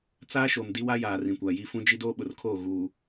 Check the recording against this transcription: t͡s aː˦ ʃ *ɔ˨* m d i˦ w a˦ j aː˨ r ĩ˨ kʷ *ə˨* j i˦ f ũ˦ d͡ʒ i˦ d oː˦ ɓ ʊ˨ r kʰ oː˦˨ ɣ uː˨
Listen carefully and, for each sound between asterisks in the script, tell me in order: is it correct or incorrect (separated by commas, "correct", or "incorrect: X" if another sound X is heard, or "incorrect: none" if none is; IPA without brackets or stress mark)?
incorrect: o˨, incorrect: a˨